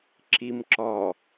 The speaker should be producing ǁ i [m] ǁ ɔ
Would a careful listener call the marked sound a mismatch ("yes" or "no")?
no